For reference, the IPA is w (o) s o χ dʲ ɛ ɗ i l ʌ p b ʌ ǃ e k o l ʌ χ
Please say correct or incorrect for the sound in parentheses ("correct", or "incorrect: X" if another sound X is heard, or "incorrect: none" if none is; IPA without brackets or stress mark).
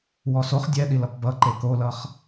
incorrect: ɔ